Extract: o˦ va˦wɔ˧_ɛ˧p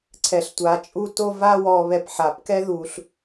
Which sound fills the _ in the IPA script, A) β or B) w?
A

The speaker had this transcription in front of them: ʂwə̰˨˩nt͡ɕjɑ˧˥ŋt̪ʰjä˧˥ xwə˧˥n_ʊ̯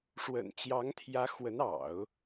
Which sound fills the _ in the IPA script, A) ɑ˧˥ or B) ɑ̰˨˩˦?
B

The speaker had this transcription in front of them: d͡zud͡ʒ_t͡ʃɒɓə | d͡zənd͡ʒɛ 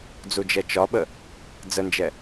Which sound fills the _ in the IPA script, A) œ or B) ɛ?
B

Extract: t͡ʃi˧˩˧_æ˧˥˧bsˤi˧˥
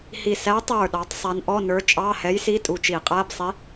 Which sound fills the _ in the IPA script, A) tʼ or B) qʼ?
B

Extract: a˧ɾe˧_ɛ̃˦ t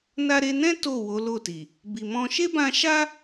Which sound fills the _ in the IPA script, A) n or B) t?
A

